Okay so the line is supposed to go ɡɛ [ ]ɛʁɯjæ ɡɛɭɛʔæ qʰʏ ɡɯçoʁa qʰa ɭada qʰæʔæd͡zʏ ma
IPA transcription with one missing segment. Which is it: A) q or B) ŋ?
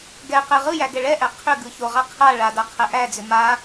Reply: A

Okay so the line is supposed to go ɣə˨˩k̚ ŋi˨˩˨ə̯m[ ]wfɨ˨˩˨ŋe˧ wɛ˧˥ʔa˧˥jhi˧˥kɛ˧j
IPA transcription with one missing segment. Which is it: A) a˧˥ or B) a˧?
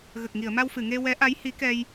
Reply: B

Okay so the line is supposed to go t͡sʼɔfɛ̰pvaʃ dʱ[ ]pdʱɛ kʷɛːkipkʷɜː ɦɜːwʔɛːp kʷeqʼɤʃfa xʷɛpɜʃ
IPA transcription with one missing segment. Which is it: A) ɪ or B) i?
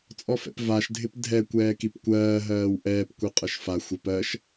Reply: A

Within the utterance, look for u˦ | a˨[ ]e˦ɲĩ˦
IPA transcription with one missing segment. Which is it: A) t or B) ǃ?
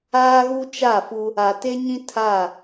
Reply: A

